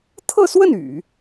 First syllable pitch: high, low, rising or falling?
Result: falling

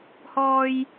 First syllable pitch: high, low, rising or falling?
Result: low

